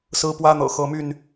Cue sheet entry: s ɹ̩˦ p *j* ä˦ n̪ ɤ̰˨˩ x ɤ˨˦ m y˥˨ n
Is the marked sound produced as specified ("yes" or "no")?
no